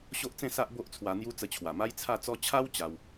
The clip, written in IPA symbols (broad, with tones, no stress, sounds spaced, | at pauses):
ɕ o˦ ʔ t͡s ẽ˥˧ s a˦ ʔ b o˦ ʔ t͡sʰ w a˧ n̪ j u˦ t͡s ə˧ t͡ɕʰ w a˨˩ m a˦ j t͡sʰ a˥˧ t͡s ɔ˦ t͡ɕʰ a˦ w t͡ɕ a˦ w